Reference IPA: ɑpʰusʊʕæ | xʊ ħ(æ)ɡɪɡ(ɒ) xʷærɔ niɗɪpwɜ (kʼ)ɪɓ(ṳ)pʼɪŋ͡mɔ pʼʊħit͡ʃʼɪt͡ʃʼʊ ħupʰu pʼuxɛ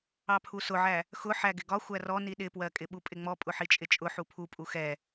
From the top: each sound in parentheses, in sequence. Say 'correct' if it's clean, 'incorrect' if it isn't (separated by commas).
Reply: correct, correct, correct, incorrect